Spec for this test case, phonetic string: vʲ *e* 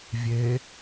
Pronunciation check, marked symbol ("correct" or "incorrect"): correct